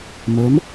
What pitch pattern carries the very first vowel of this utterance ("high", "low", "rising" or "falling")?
rising